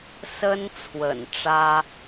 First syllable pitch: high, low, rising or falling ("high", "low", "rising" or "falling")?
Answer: high